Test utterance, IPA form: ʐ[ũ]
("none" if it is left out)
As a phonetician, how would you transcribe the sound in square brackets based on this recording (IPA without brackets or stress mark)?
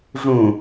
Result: ũ